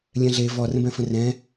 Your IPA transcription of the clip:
lʲ ɛ̃ ɮ e v ɔ r ə̃ b ɛ̃ f ə̃ r ɛ̃

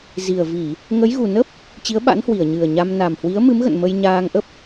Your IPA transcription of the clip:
z i˨˩ ə̯ v i˧˩˨ | ŋ ə˨˦ j ɣ u˨˩ n ə˦˥ p̚ | t͡ɕ i˨˦ ə̯ ɓ a̰˧˥ n h w i˧˩ ə̯ ɲ ɨ˨˩ ə̯ ɲ a˧ m n a˨˩ m h w i˨˦ ə̯ m ɨ˨˦ m ɣ ə̰˧˨ n m ə˧ j ɲ aː˧ ŋ ʔ ə˦˥ p̚

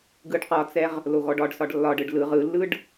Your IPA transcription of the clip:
ɡ ɯ ɖ q ɒ t͡s ɛ ʁ | l o ɣ ɔ ɖ ɒ ɖ s ɒ ɖ lː ɒ ɖ ɯ ɖ l ɯ ʁ ɯ lː ɯ ɖ

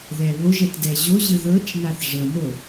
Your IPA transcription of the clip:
ð ɛ β o ʒ ɛ t d ɛ ʑ o ʑ ɯ ð ɤ t͡ʃ n a θ ʐ ɤ n o

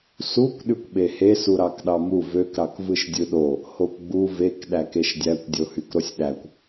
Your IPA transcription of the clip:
s u kʷ ɗ y kʷ ɓ e h e s u ɾ ɑ k ɗ ɑ m u v ø k ɾ ɑ k v ɯ ʃ dʲ ɯ ɗ o | h o kʷ ɡ͡b u v e k ɗ æ k e ʃ dʲ æ kʷ dʲ o h y k ɾ o sʲ ɗ æ kʷ

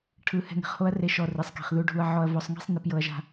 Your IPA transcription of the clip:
ʈʰ ɯ˧ h ɛ̤˧ ŋ e̤˨ χ h o˦ ɐ̯ r e˧ ʃ ɔ˨ r i˨ sˤ k i̤˨ χ ð u˧ ɖʱ u˧ ɐ̯ ʕ ɔ˧ ɐ̯ v ɔ˧ sˤ ŋ i̤˦ sˤ n i˧ p j ɤ˦ ɐ̯ ʒ a̤˦

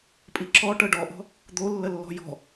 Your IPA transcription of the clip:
pʼ i ǁ ɔ ʈ ɤ ɖ ɔ ʔ ɔ̤ | d̪ o lː ə lː ɔ̤ j ɔ̤

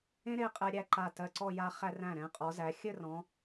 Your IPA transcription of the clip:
ẽ˥ ɾ e˥˧ qʼ ɛ˧ ɾʲ æ˥˧ ǃ a˧˩ t ɜ˧˩ ǀ ɔ˥˧ j a˧ χ æ˧ r æ̃˧˩ ɾ ɛ̃˩˧ qʼ ɔ˩˧ z æ˩˧ xʲ ɘ˥˧ r ɔ̃˩˧

